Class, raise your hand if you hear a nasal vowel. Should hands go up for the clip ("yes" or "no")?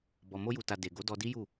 no